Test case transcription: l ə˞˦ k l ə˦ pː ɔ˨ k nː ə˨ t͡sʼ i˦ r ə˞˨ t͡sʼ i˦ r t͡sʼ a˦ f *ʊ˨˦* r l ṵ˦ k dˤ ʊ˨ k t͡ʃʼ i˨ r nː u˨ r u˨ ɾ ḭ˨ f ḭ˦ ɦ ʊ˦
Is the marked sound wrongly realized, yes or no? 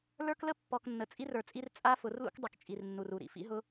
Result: no